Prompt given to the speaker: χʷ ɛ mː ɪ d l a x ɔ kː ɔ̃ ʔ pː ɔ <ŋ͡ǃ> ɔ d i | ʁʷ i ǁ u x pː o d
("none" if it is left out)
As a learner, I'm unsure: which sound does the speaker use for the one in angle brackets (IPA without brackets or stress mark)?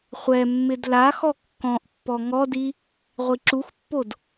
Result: ŋ